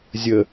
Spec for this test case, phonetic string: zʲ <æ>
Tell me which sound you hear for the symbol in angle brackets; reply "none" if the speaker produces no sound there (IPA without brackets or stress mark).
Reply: ə